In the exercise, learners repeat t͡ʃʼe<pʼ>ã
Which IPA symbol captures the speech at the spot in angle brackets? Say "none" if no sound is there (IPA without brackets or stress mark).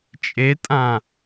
tʼ